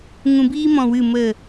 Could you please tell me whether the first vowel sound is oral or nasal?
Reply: nasal